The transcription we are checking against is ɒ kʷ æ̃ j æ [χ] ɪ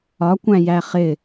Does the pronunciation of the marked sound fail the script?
no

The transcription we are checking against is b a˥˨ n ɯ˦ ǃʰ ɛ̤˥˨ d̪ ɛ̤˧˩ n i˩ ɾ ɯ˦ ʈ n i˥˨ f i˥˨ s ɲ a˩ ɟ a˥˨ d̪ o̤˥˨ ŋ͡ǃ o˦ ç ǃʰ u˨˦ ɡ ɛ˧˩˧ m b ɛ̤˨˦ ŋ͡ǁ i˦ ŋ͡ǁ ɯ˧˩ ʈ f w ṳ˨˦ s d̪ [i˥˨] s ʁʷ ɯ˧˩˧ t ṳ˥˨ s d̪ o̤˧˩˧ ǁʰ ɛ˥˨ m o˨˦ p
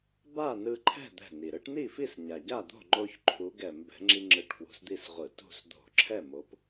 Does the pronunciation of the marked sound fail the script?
no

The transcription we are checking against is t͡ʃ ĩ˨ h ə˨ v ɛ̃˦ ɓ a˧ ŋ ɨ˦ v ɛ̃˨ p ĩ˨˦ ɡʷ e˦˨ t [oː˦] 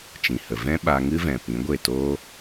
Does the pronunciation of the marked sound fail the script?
no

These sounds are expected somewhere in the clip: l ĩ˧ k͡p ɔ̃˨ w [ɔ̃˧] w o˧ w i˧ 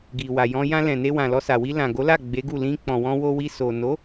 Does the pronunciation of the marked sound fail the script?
no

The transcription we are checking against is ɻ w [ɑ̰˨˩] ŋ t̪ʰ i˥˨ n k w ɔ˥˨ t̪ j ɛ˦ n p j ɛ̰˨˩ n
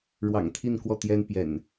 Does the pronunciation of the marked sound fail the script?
no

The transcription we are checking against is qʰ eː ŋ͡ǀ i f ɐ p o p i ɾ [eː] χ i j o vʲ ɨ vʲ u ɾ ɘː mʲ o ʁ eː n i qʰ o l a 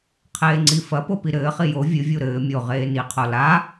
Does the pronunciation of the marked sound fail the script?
yes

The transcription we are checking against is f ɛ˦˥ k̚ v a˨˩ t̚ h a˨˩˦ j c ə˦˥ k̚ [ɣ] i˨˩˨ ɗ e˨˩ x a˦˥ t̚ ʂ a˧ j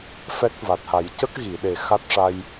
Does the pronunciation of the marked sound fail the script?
no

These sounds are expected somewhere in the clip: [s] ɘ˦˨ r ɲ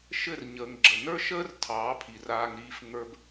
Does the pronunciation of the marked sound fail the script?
yes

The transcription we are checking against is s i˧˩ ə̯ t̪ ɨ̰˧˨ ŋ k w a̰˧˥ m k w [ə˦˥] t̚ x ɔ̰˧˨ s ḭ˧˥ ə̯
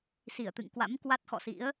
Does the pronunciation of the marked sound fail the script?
yes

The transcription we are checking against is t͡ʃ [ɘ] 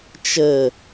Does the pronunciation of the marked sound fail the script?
no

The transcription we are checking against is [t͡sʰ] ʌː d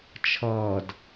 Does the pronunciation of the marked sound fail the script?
yes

